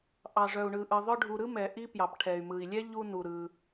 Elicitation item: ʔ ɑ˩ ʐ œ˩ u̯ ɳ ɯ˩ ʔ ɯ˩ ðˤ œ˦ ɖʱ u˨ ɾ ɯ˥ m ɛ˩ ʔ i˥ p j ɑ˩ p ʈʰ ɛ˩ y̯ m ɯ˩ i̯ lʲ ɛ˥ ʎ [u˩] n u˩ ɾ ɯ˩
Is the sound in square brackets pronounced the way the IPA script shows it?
no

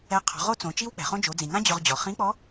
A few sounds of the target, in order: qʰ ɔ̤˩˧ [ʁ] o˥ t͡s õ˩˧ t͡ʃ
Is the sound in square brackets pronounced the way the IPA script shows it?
yes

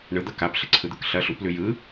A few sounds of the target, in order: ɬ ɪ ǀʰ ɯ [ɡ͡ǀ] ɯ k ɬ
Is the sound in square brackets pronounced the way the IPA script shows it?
no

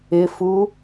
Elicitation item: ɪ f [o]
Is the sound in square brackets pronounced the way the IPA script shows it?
no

